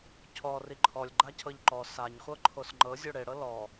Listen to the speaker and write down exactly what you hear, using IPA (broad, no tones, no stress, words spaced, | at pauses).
cʰɔri ǃʰɔlʲ ɡ͡ǃacʰɤʎǃɔ saɲχʷɤ ǃʰosŋ͡ǃɤ zʲoɽeɽɤ lɔ